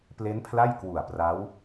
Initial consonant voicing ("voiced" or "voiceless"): voiceless